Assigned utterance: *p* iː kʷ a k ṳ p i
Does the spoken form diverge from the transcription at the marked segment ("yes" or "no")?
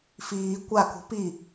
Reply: yes